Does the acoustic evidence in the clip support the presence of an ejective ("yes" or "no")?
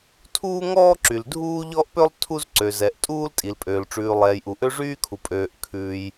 yes